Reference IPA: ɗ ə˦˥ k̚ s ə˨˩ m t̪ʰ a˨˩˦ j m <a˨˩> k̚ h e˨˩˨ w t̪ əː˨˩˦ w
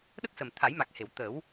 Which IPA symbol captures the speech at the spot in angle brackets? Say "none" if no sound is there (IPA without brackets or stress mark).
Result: a˨˩